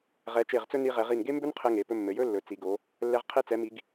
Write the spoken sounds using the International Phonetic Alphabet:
ʁ ɛ˩˧ t͡ʃ e˧˩ ʁ t͡s ɵ˥ n i˧ ʁ ɛ˩˧ ʁ i˧˩ n ɡ e˥ m b ɵ˥ n qʰ ɘ˧ ŋ e˩˧ p ɵ˧ mː ɘ˩˧ j ɵ˥ lː ɵ˩˧ t͡s i˩˧ ɡ o˩˧ | lː ɛ˧ ʁ qʰ e˧ t͡s ɛ˩˧ m i˩˧ ɡ

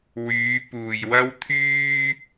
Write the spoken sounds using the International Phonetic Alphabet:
w yː˨˧ p uː˨ j w ɐ˥ w t̪ʰ yː˥

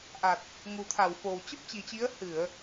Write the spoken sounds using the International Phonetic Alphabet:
ʔ a˨˩ t̚ | ŋ u˨˩ t̪ʰ a˧˩ w f o˨˩ w t͡ɕ ə˦˥ p̚ t͡ɕ i˨˩ t͡ɕ i˨˦ ə̯ h ɨ˧˩˨ ə̯

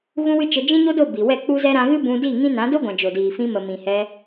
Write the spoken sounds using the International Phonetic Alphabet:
ɣ ũ˦ w ɨ˦ t͡ʃ ə˧ d͡ʒ ĩ˦ ɲ o˦ d o˦˨ b i˨ w ɛ˦˨ k͡p u˦ z ɛ˦ ɾ ã˧ ɣ ɨ˦ b ũ˧ d i˦˨ ŋ ĩ˦ n ã˨˦ d o˦ ɡʷ ã˨ d͡ʒ o˨ d iː˨ f ĩ˧ m ə˨ m ĩ˨ h ɛ˧

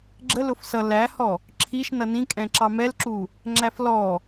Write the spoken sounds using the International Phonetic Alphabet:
ɡ͡ǁ ə l ʊ f s ʌ l æ h ɔ | ǁʰ i ʃ n ʌ n ĩ kʼ ɛ̃ ǁ ɑ m ɛ l ǁ u | ŋ͡ǁ æ f l ɔ

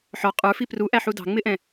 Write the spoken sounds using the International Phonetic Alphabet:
ħ ɔ qʼ ə˞ f i p r u ʔ æ ħ u d ɑ̤ ŋ͡m ɪ ʔ ɛ̃

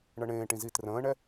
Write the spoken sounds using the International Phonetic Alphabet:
ɳ ɤ ɳ ẽː ʈ ĩ z i t r ə̃ː ɳ ɛ

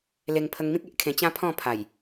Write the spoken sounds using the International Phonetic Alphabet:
l e˧ ŋ pʰ ə˧ ŋ m ĩ˦ k̚ e˦ ʔ kʰ ẽ˧ t͡ɕ ã˦ pʰ ɔ̃˥˧ pʰ a˨˩ j

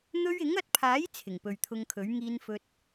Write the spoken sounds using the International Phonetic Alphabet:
n̪ ɵ˧ ɥ ɪ˨˥ ŋ ɐ˧ t̚ pʰ aː˨˥ j t͡sʰ ɪ˨˩ ŋ p ɵ˨ ɥ t̪ʰ ʊ˧ ŋ kʰ ɵ˨˥ ɥ ŋ iː˧ n f ɵ˧ t̚

